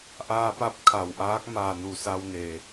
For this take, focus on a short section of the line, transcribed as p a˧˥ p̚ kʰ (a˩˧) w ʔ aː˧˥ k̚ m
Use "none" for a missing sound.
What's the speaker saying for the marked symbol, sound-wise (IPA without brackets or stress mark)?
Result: a˩